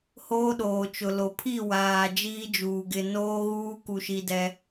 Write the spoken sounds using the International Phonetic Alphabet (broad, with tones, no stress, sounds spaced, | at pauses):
h oː˦ ɗ oː˨ t͡ʃ ʊ˨ l o˨˦ pʰ i˦˨ w aː˨ d͡ʒ iː˦ d͡ʒ uː˨ ɡ ɪ˨ n oː˦ ɣ uː˦ k u˨ ʃ i˦ d ɛ˦